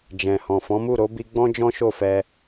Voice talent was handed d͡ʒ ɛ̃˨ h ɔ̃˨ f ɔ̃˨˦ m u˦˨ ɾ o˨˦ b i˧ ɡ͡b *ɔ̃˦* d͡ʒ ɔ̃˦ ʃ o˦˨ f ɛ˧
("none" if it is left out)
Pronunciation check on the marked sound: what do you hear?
ɔ̃˦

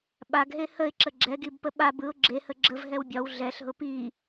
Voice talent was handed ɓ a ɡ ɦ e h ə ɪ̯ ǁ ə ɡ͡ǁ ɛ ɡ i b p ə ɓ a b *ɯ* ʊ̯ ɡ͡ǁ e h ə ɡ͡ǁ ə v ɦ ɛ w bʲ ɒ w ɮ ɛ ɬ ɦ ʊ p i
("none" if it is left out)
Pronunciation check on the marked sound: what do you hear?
ɯ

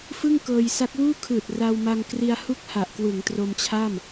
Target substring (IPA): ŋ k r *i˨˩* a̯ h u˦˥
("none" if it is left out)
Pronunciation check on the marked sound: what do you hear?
i˧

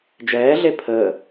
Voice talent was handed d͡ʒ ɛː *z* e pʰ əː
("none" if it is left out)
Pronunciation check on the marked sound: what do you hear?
ɮ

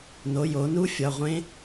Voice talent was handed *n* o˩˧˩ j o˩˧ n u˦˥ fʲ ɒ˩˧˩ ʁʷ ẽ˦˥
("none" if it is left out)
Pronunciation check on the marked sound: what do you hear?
n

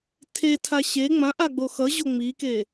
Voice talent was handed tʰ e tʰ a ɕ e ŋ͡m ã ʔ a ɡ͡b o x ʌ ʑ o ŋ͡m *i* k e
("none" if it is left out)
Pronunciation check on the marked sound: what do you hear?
i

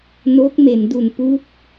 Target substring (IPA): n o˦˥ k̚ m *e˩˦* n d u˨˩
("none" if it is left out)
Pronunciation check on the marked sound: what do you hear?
e˩˦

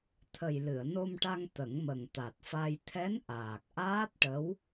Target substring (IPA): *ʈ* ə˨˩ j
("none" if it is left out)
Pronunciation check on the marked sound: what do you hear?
t̪ʰ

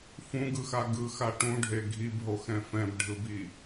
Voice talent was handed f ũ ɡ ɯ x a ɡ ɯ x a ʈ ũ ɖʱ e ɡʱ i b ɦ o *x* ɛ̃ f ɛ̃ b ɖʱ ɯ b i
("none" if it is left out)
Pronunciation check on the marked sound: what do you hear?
x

